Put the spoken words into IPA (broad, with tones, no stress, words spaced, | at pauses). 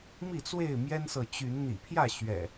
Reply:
mi˥˨t͡swe˥˨ɪ̯ mjɛ˦nsɤ˨t͡ɕy˨˦n n̪ḭ˨˩pʰjä˥˨ ɕɥɛ̰˨˩